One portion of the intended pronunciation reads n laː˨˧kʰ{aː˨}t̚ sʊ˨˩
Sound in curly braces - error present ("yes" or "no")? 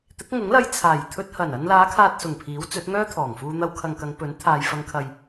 no